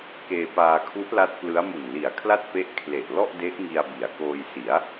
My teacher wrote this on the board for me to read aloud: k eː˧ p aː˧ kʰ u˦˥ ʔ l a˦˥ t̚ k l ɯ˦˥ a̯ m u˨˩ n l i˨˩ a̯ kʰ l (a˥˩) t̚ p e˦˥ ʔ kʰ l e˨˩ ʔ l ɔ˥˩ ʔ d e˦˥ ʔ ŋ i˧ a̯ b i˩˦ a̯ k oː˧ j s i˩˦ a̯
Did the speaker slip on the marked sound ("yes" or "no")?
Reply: no